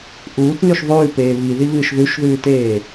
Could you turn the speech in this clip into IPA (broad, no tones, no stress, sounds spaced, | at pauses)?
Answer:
ʔ uː t n ʉ ʃ ðˤ ʉː p eː β i ð i β ɨː ʃ ð ʉ ʃ ð ʉː t eː